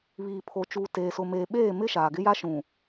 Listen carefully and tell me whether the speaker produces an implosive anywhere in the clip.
yes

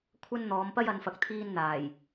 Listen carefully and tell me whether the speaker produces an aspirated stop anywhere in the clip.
yes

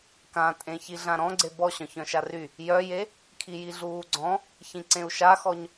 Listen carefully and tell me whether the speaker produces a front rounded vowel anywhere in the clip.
yes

